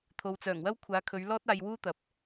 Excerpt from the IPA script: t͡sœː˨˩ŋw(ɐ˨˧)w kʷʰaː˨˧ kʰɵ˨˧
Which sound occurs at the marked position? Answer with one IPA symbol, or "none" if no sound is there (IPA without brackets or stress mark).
ɐ˥